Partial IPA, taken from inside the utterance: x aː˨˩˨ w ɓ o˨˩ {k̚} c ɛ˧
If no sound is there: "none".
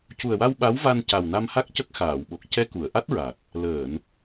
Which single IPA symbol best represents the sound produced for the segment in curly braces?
k̚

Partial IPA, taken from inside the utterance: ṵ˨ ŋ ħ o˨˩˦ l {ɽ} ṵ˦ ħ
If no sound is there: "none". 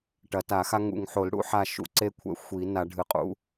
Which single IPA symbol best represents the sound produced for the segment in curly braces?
ɽ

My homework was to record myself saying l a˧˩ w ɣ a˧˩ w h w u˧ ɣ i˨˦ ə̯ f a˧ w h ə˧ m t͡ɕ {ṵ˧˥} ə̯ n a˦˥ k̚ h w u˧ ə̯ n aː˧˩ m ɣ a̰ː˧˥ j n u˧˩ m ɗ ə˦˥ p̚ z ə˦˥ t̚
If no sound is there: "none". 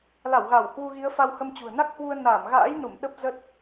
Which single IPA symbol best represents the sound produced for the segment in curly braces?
ṳ˨˩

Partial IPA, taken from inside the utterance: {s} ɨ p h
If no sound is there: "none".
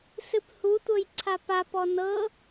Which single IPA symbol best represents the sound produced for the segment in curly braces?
s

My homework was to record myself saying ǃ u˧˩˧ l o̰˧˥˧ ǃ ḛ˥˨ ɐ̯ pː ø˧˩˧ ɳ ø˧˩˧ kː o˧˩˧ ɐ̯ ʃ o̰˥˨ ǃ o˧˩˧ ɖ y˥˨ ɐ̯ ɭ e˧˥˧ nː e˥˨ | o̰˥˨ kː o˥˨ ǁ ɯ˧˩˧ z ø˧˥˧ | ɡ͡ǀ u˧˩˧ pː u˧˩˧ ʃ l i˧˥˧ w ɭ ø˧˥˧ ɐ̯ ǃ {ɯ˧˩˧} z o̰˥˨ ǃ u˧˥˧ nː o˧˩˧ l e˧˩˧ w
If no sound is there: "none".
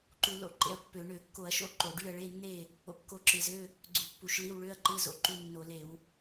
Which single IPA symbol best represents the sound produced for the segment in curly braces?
ɯ˧˥˧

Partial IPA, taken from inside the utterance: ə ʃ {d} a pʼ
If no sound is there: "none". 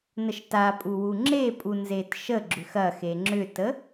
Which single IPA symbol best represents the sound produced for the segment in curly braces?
t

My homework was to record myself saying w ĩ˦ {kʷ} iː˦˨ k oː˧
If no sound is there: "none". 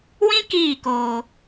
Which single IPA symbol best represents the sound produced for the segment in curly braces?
k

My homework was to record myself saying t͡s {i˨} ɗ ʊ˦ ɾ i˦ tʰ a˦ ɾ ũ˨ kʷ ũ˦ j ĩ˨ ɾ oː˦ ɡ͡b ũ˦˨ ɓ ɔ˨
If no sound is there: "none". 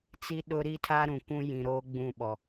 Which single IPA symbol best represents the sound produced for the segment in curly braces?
i˦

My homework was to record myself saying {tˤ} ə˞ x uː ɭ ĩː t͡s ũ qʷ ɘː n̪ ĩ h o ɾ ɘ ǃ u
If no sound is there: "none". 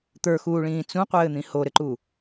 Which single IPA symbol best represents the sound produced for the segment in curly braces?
t̪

